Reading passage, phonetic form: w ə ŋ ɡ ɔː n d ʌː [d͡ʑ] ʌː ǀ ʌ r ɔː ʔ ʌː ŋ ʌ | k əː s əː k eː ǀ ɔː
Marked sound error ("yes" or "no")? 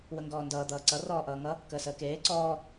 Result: yes